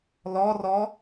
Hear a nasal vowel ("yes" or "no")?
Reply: no